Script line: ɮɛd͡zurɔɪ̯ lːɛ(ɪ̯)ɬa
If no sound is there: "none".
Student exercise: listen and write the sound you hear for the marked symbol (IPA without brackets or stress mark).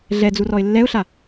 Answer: ʊ̯